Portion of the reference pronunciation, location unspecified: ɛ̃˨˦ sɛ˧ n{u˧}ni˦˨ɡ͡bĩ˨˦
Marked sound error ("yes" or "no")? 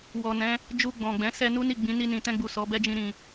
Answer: yes